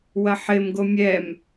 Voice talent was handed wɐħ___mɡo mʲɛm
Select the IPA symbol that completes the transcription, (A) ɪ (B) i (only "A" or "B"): A